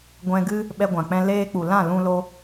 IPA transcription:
ɡʷ ɛ̃˧ ɡ ɨ˦ | ɓ ɛ˧ ɡʷ ã˨ k͡p ɛ̃˧ l eː˧ k͡p u˨ l ã˦˨ l ũ˧ l o˧

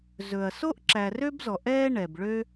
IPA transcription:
z ɵ˨ ɐ̯ s o˥ ʔ ǁ æ˨ r ø˥ b z ɔ˨ ʔ ɛː˥ ɳ ɛ˨ b ɭ ø˥

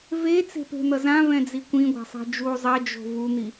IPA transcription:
v e t͡s e̤ p e̤ n̪ ʌ z ã v ɛ̃ d͡z i kʷ ĩ ɡʷ a̤ sˤ ɛ̤ d͡ʒ u zˤ ɛ d͡ʒ o̤ v u n̪ i

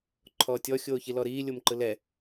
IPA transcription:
ǃʰ ɔː tʲ ɔ xʲ oː ç i l ɔ ɾ iː lʲ o m ǃ ɯ l ɛ

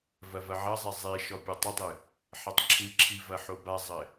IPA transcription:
v ɐ v ɐ ʕ ɐ zˤ ɛ zˤ e ʃ ɔ pʲ ɐ tˤ ɐ dˤ ɨ | ħ ɐ tˤ ǁʰ ɨ ǁʰ i v ɐ ħ o b a zˤ ɘ

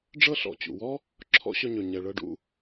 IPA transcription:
ɖ͡ʐ ɤ˦ ɬ ɔ̰˨ t͡ɕ ṵ˨ w ɔ˦ | ǁʰ ɔ̰˦ ɕ ɵ˧ ɲ ɵ˨ ɲ ɛ˨ ɭ ɤ˧ ɖ ṵ˧

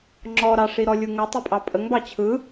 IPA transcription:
ŋ͡ǁ ɔ ɾ ɑ ʂ i ɾ ɔ lʲ u ŋ ə tˤ i pʼ ɑ pʼ ə ŋ b ɑ t͡ɕʰ ɯ

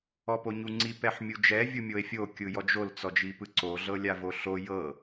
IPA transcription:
ɔ p o ɲ u ŋ͡ǀ i p ɛ ħ mʲ u d͡ʒ ɛ vʲ u mʲ o e̯ fʲ o kʲ ɯ j ɔ d͡ʒ o l t͡s ɔ d͡ʒ i p ɯ ǀ o ɮ ɤ lʲ a v o ɬ o j ɤ

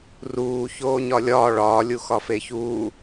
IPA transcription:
r uː ç oː ɲ ɒ lʲ ɒː ɭ ɒː lʲ u x ɒ f e ç uː

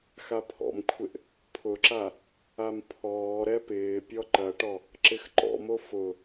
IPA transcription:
x a pʰ ɔ̰ m kʷʰ ɪ ʔ | pʰ ʊ ǁ a | a m pʰ ɔː ɾ ɛ p ɪː pʲ ɔ ǃ ɐ ʈ ɔ | ǁ ɪ x ǃ ɔ̰ m o f ʊ

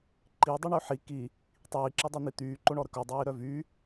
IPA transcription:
ǃ i dˤ y ɳ ø ħ i k i | tˤ iː ǁ i dˤ ø n̪ i t̪ yː ǃ o ɳ ɔ ɾ ə k œ dˤ iː ɾ œ v y

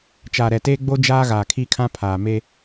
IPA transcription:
t͡ʃ aː˨ ɾ ɛ˨ t eː˦ ɡ͡b o˦ d͡ʒ aː˦ ɣ aː˨ kʰ i˦ kʰ ã˦ pʰ aː˨ m e˦

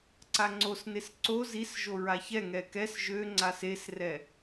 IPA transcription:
ǀ a ŋ͡ǀ o s n e s ǀ o z i s ʒ o ɹ a ç ɛ ŋ ɛ k ɛ s ʒ ø ŋ͡ǀ a s e s r ɛ

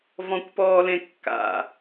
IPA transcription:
v ɔ̃ kʷ p ɔː l ẽ kː a̰

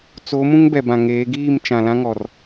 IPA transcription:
t͡s o˨˦ m ũ˦ ŋ b ɛ˨ b ã˨ ŋ eː˨˦ ɡ iː˦˨ m t͡ʃ ã˨ l ã˦ ŋ ɔ˨ r

